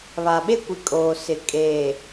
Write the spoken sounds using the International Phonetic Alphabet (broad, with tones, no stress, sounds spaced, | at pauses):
β a˨ ɓ e˦ kʷ i˨ kʼ oː˨ s ɪ˨ kʼ eː˨